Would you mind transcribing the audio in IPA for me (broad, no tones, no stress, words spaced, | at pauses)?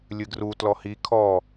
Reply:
lʲɨɡru tlɔhi kʰɔ